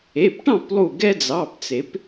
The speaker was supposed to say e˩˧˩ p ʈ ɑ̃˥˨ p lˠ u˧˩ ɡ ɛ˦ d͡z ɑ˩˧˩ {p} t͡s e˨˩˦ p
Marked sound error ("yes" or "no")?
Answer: no